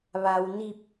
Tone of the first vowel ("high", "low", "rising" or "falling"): low